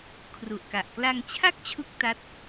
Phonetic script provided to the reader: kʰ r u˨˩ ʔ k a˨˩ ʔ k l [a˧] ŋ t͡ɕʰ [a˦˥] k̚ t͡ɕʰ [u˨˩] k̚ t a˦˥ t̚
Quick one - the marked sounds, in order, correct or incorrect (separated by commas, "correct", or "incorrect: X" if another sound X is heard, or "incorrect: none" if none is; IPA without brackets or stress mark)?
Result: correct, incorrect: a˥˩, incorrect: u˦˥